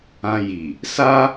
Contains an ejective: no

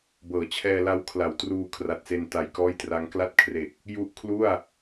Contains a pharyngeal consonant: no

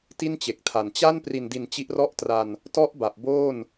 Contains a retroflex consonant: no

